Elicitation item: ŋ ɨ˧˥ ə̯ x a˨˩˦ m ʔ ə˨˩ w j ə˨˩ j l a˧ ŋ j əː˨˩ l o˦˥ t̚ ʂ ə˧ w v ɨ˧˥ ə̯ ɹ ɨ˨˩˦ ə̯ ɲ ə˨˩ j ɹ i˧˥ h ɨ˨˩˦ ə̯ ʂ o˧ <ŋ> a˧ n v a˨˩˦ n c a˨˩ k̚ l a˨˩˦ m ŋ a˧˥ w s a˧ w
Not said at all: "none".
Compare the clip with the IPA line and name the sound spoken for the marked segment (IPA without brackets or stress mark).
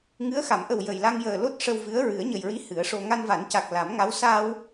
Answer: ŋ